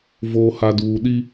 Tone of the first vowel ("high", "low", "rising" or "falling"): low